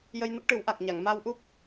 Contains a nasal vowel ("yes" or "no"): no